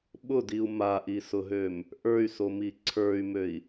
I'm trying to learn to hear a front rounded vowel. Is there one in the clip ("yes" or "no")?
yes